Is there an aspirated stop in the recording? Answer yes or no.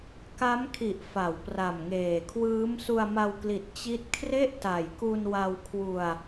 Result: yes